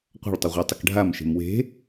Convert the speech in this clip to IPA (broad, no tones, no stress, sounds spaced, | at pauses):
qʷ a̤ ɭ tˤ ə ʁʷ a tˤ ə k ɖʱ a m ʃ e̤ m w e̤